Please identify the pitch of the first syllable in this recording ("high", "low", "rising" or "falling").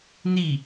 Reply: falling